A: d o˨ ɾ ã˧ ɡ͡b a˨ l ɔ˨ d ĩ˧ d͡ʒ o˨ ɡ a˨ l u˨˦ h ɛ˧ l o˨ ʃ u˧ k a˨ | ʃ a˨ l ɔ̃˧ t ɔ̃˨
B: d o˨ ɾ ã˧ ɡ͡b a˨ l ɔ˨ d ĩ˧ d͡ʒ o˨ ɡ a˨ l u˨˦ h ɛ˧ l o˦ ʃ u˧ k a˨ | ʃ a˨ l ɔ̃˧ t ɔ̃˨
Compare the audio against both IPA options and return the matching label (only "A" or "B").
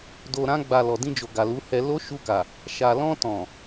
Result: B